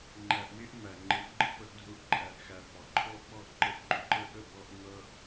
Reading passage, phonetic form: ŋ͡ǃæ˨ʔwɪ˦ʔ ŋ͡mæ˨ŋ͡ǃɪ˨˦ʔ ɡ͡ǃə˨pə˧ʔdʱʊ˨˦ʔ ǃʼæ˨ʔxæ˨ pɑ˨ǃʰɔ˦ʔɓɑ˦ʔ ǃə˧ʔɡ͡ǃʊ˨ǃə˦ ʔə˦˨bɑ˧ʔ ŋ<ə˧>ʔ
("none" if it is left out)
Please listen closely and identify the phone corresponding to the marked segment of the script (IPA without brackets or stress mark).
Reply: ʌ˧